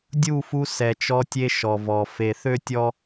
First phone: dʲ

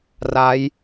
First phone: r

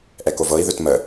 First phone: ʔ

